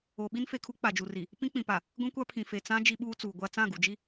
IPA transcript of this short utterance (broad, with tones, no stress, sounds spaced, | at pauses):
o˨ ɓ i˦ n f e˨ kʰ u˦ k͡p a˨ d͡ʒ u˨ r i˨ | p ĩ˦ k͡p ĩ˨ p a˨ | ɡʷ ĩ˦ kʷ a˦ pʰ ĩ˨ f e˨ t͡s ã˦ d͡ʒ i˦ ɓ uː˦ t͡s uː˨ ɡʷ a˦ t͡s ã˦˨ ɡ u˨ d͡ʒ i˦